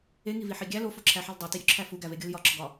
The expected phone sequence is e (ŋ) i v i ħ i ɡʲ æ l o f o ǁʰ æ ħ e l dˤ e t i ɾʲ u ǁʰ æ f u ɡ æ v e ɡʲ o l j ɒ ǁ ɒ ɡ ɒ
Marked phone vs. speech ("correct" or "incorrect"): correct